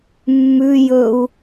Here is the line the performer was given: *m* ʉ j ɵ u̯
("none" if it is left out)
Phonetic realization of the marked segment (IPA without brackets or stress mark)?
mː